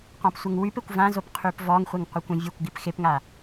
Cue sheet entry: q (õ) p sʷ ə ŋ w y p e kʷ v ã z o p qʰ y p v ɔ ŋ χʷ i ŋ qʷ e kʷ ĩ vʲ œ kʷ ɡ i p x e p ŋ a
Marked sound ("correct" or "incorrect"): incorrect